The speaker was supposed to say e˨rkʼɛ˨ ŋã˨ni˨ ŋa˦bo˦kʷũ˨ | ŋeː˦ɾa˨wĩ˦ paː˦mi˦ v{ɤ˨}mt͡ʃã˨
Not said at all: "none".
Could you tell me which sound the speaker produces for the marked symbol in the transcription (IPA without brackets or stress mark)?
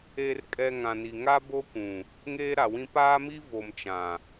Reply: o˨